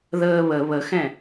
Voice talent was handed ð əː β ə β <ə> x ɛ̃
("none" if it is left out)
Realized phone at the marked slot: ə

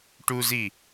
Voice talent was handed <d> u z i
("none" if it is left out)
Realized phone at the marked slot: ʈ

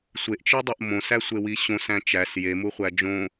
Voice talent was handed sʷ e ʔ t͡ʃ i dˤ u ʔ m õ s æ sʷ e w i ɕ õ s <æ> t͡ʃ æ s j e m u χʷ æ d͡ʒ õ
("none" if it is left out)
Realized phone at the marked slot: æ̃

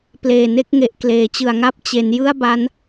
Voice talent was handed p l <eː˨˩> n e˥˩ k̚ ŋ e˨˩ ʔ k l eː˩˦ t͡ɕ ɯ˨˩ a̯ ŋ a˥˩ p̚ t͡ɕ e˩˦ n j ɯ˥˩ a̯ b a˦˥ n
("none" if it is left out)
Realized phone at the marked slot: eː˨˩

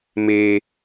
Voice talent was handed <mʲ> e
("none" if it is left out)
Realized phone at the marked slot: m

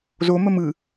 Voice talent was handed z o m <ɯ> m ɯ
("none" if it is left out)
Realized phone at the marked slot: ə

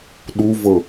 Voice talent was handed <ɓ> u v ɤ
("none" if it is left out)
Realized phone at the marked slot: ɗ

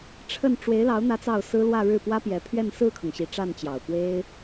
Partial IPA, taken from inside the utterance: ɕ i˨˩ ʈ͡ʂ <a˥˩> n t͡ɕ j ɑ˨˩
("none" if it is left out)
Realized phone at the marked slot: a˥˩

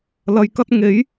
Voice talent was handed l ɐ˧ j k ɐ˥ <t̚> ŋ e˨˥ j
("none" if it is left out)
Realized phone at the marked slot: t̚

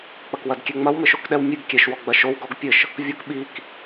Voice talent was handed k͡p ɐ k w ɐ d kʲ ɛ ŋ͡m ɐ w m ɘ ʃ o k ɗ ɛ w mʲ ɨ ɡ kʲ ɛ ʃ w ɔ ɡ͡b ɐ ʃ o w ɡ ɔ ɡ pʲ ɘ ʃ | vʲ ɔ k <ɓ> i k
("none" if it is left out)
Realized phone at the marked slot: ɓ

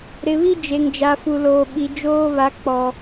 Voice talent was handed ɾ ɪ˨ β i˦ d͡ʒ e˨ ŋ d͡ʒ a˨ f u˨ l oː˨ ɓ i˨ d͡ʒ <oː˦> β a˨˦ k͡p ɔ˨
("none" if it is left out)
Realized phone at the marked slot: oː˦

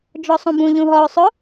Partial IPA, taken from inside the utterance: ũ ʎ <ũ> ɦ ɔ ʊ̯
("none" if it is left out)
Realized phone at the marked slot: ũ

